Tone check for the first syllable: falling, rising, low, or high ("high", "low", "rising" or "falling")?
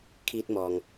high